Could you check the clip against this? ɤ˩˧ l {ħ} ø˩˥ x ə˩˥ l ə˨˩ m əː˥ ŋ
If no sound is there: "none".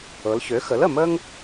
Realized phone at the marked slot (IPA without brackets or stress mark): ç